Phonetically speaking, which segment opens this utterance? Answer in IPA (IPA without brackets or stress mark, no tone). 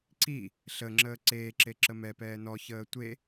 ǀ